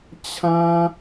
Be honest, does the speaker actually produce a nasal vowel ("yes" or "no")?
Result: yes